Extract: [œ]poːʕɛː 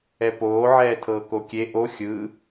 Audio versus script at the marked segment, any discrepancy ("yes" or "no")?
yes